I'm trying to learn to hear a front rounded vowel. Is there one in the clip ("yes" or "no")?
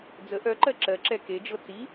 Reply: yes